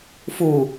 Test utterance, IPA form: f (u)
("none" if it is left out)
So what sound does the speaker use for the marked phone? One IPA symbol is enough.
u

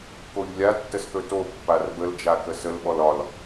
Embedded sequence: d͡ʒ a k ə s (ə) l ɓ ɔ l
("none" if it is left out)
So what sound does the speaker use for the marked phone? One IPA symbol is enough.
ə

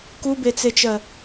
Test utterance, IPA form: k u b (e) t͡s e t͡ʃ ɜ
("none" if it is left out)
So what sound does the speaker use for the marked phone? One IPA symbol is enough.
e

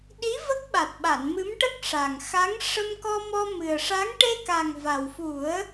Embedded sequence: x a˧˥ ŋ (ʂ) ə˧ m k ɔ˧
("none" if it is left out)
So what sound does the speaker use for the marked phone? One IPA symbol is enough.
ʂ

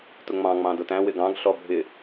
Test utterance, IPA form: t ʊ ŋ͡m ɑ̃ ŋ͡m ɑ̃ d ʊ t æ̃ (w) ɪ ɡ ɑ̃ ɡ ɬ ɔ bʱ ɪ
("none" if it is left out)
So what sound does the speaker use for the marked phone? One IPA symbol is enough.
w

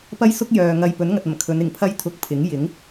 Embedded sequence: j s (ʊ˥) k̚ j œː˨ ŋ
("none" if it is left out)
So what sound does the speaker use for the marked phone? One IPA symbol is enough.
ʊ˥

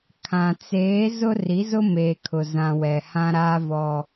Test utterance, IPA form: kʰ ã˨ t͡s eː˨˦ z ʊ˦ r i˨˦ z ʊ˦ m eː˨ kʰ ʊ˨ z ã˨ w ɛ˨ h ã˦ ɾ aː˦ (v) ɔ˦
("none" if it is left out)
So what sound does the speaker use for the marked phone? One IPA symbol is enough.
v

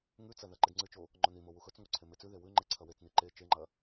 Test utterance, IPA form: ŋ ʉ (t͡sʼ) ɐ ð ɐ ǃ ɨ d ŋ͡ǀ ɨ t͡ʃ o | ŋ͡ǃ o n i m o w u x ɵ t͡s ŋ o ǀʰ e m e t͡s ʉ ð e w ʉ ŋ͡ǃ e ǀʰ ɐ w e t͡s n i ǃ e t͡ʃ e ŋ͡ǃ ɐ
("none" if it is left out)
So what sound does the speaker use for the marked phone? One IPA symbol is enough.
t͡s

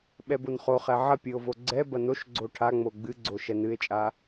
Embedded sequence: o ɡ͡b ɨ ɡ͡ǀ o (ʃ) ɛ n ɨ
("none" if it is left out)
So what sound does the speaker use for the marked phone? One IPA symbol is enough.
ʃ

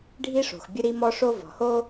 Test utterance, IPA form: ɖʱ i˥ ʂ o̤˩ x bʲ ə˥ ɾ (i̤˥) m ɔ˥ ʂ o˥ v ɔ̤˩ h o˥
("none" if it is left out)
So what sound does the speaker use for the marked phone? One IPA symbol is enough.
i˥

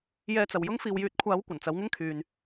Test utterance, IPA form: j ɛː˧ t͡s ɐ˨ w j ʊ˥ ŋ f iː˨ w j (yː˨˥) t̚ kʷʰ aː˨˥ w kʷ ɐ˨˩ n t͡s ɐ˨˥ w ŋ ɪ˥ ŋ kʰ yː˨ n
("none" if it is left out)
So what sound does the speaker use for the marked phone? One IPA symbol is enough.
yː˨˥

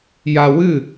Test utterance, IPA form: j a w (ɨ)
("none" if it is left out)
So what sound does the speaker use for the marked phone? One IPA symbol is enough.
ɨ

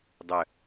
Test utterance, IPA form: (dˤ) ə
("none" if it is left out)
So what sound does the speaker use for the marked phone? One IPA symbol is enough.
dˤ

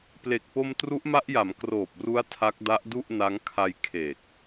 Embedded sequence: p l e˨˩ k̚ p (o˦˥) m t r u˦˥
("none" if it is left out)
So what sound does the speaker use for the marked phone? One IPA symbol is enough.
o˧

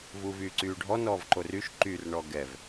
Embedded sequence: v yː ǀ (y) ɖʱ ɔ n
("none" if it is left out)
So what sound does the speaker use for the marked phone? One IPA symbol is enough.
yː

